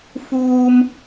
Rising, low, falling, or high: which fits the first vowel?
high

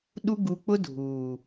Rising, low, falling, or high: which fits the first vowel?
high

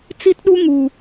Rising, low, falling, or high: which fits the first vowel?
high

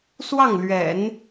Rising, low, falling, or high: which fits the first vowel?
falling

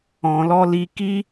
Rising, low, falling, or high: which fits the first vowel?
low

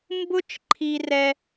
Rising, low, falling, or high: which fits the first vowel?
high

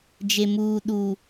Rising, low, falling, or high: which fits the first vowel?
low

